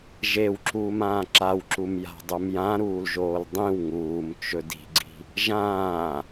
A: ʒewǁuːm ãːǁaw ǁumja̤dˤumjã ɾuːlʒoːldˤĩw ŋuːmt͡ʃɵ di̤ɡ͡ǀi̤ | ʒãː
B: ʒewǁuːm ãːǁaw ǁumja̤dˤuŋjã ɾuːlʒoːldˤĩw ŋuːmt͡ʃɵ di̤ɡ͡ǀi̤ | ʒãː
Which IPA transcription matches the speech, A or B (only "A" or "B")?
A